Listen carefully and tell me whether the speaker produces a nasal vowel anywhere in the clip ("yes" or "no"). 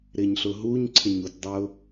no